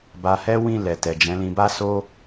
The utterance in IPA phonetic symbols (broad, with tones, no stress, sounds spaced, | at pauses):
b a˧ h ɛ˦ w ĩ˦˨ l ɛ˨ t ɛ˨ d͡ʒ ɛ̃˨˦ l ĩ˧ b a˦ s o˦